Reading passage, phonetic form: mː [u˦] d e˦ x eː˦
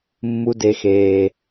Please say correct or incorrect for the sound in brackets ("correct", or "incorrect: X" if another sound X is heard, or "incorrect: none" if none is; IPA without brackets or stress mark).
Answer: correct